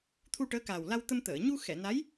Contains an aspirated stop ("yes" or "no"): yes